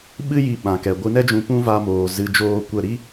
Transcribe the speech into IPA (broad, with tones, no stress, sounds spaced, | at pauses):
ɓ ɨ˦ j i˧ ɓ ã˨ k ɛ˨ ɡʷ ɨ˧ n ɛ˦ d͡ʒ ũ˧ p ũ˦ v a˧ m oː˨ z ɨ˧ d͡ʒ oː˦ kʷ ə˦˨ ɾ i˦